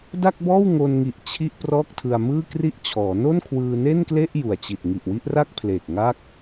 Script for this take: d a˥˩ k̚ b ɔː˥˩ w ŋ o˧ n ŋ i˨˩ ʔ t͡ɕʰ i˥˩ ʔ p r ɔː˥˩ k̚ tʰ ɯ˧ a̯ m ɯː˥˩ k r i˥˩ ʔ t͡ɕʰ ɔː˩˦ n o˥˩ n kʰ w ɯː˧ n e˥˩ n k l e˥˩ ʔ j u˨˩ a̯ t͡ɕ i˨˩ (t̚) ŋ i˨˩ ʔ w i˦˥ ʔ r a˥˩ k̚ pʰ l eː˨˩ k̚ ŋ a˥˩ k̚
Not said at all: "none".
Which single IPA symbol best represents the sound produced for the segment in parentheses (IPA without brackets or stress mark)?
t̚